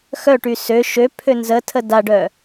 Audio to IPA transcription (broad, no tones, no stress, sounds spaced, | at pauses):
x œ ʈ y s ø ʃ ø pʰ ø n z ə tʰ ə d a ɖ œ